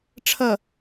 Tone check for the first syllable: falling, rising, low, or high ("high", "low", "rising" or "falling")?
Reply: low